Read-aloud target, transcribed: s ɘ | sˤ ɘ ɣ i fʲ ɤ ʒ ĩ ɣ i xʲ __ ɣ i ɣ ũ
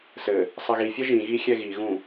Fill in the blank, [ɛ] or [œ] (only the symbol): ɛ